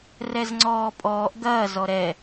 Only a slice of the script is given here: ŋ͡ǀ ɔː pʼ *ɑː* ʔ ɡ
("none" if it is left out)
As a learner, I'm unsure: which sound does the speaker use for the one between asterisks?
ɔː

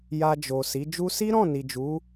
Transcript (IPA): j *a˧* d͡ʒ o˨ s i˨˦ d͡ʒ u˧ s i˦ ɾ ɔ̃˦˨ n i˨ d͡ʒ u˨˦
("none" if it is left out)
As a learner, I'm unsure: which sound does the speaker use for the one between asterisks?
a˧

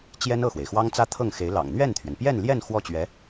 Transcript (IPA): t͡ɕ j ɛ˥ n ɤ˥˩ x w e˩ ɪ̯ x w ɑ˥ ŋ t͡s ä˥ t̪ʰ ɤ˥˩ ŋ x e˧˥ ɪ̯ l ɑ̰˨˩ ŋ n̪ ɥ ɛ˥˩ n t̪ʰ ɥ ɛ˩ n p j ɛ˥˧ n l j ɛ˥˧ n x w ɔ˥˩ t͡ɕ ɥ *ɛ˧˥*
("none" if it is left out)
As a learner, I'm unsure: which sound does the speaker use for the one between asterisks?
ɛ˧˥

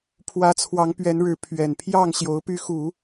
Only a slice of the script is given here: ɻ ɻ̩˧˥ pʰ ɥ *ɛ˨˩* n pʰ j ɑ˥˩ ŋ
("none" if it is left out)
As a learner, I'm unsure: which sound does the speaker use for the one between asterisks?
ɛ˨˩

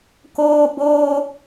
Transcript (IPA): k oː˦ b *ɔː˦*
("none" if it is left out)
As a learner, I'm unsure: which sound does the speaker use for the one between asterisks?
oː˦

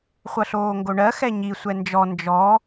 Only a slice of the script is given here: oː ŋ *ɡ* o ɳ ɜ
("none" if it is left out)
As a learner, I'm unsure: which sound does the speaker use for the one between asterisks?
ɡ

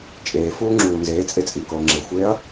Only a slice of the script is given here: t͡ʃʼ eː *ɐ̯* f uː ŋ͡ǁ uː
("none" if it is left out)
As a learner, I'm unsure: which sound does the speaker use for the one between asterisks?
none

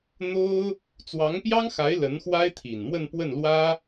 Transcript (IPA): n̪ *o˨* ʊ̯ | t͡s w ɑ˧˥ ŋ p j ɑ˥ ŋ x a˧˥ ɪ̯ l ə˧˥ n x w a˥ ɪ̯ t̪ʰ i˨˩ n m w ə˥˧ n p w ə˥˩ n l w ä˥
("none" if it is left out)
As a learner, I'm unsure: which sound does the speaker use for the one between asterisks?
o˥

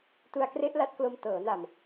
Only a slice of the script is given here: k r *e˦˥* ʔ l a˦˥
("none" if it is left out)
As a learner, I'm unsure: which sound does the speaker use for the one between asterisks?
e˦˥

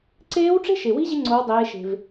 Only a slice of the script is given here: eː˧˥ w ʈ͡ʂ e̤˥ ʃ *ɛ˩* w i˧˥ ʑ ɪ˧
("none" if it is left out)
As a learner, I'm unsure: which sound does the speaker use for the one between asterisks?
e˩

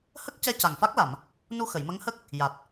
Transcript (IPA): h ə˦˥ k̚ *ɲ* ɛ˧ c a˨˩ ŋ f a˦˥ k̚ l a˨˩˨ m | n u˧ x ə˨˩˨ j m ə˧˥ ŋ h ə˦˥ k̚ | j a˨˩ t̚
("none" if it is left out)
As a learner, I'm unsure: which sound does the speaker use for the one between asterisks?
c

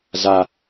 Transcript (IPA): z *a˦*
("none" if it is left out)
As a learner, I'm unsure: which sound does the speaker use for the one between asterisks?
a˦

